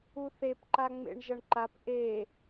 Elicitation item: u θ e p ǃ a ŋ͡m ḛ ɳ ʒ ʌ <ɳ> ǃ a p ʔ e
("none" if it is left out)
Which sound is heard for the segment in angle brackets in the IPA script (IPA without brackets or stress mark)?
ɳ